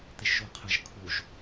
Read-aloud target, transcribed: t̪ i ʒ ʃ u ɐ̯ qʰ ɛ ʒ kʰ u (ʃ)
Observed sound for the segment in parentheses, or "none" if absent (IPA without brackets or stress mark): ʒ